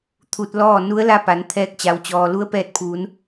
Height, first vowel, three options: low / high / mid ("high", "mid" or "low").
high